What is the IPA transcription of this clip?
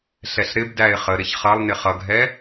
ɬ ɛ ɬ ɾ ɪ b d æ ɪ̯ χ ə ɾ ɪ ç χ ʌ lˠ n ɪ χ ʌ ɡʱ ɛ

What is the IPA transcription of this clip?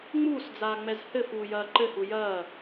ŋ͡m uː s d͡z aː ŋ͡m ɛ z h ɘ f uː j ɐː ǃ ɘ h u j ɐː

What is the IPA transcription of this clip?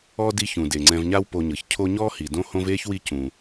ɔː˥ d i˦ ç ũ˩ d e˩ ŋ͡ǀ ɛ̃˨ v ɲ a˦ w p o˨ ɲ ɤ˩ ç cʰ o˦ ɲ ɔː˥ h i˩ d õ˦ h õ˦ v eː˥ ç w i˦ c ũ˩

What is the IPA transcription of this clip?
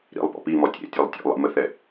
ɾ ḭ lˠ p ɔ̰ p i m ɔ tʲ ḛ tʲ e lˠ tʲ ɔ̰ lˠ ḭ m ə θ ɛ

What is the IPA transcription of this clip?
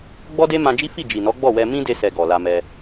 ɡ͡b ɔ˦ d e˦ m ã˧ d͡ʒ i˦ f i˦˨ d͡ʒ i˨ n ɔ˨˦ ɡ͡b ɔ˦˨ w ɛ˧ m ĩ˦ d e˧ s ɛ˨ ɡ ɔ˨ l a˧ m ɛ˧

